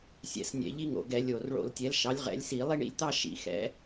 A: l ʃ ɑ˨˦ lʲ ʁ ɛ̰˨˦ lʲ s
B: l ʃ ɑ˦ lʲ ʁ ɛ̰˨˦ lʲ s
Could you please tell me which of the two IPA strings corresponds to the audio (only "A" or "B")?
A